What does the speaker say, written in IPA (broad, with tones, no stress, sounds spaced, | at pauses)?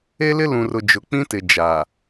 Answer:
e˦ l ɪ˦ l ũ˨ r ʊ˨ d͡ʒ ʊ˨ k͡p ĩ˦ t ɪ˨ d͡ʒ aː˨